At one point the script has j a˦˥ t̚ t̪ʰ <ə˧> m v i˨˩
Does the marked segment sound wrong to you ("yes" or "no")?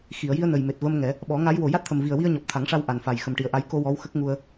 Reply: yes